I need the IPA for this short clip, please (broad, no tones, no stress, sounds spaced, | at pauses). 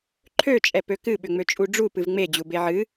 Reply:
ǃʰ ø t͡ʃʼ ɛ p ø k ɨ ɓ ʏ ŋ͡m ø t͡ʃʼ u ɖ͡ʐ u p ɨ v ŋ͡m e d͡ʑ u b e ʕ ɨ